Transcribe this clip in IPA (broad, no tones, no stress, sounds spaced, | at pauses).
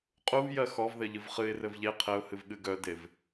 qʼ u v j ɜ x ɔ v ð ɘ ʎ ɨ v χ ɨ ɪ̯ r ɘ v ʎ e qʰ ɘ ʊ̯ h ɨ v ɠ ɨ ɡ œ d e v